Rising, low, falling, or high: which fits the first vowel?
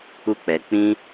high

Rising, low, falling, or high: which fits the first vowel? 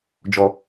low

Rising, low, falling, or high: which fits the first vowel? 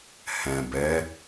low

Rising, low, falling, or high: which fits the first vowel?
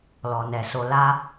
low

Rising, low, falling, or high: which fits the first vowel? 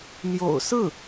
low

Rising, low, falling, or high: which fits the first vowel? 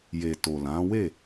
low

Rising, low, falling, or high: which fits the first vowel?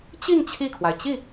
falling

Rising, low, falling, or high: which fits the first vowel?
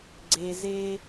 low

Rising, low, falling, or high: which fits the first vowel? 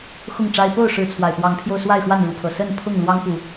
falling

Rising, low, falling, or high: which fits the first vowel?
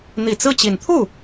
low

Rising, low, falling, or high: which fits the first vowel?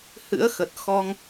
rising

